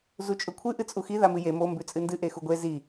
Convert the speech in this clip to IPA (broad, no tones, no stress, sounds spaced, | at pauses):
z u t͡ʃʼ ɵ kʷʰ ɨ ʔ ɨ t͡sʼ u x i ð a m ɨ j e m o m b ʉ t͡sʼ ɨ n d ɨ ʔ e x u ɡʷ e z i